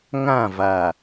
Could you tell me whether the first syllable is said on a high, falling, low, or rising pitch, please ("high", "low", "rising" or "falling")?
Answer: falling